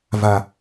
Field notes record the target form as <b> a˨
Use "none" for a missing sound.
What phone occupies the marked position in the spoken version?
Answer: v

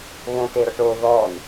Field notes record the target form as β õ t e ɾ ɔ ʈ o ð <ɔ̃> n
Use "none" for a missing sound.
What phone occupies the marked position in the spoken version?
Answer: ɔ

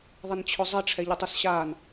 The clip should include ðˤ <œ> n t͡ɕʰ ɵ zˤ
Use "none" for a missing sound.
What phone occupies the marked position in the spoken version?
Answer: ə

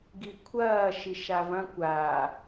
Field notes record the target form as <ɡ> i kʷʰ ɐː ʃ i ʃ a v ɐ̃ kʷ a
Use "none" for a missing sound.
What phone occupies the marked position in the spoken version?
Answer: ɡ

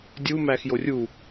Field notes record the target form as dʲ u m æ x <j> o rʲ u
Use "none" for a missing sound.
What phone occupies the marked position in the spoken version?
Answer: j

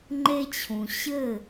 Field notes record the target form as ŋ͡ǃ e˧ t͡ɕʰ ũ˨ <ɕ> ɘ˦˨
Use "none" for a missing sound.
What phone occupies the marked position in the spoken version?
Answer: ɕ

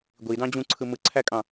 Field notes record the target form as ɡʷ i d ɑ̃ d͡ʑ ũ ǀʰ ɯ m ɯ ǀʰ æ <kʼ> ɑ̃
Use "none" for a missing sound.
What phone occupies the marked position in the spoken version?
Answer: kʼ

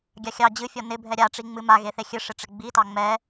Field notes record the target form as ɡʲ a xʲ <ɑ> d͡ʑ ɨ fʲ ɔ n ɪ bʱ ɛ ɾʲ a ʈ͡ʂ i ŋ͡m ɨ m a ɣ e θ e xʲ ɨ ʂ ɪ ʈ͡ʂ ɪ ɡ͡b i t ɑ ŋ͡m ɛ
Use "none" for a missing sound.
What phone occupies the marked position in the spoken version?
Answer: ɑ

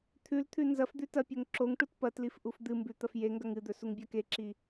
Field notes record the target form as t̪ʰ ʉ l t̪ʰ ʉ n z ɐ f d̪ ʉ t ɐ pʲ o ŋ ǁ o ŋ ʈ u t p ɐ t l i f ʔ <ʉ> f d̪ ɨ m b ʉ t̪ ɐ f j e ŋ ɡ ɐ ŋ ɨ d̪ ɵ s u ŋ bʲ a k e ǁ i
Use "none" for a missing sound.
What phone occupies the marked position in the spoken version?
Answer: u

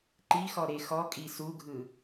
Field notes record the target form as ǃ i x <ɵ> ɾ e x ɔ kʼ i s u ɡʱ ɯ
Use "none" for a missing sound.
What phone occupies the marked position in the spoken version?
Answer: ɔ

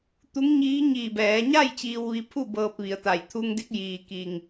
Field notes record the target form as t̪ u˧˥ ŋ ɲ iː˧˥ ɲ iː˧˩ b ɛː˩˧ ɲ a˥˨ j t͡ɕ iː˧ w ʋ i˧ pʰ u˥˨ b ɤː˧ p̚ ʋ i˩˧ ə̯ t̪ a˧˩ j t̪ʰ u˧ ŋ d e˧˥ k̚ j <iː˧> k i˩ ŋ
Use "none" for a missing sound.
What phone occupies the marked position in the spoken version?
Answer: iː˩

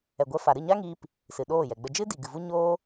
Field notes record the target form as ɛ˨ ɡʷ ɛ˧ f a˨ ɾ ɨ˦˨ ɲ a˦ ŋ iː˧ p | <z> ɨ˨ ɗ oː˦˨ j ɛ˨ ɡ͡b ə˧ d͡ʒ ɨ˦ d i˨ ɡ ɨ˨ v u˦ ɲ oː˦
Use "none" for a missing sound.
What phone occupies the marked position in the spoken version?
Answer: s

